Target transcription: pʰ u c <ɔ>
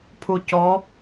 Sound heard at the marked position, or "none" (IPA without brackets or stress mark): ɔ